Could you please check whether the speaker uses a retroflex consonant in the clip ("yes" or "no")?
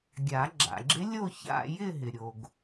no